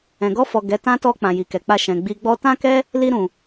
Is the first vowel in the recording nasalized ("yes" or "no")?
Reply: yes